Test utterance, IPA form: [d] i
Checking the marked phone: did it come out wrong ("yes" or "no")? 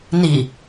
yes